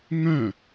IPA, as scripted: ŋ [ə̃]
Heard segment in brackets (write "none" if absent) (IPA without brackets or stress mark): œ̃